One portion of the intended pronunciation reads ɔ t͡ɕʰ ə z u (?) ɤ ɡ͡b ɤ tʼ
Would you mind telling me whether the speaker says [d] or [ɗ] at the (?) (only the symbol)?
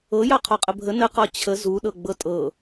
ɗ